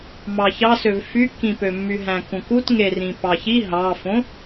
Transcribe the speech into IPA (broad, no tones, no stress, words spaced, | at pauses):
mɑçɑsøv fykːĩpømːy ɦæ̃kũkut ŋerĩpɑçi ɦɑfõ